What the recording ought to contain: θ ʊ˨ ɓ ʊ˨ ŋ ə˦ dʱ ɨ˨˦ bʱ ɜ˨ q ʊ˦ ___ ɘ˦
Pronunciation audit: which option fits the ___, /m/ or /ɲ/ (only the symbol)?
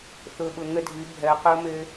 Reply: m